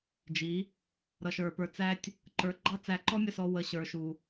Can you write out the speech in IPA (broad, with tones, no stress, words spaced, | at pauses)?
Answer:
d͡ʒi˨˦ | ɾʌ˨ʃə˞˨pə˞˨t͡sæ˧tʲ | ǃə˞˨ ɡ͡ǃɑ˦t͡sæ˨˦ǃɔ˦mʲə˦˨ sɔ˧ wə˨ɕə˞˨ʃu˨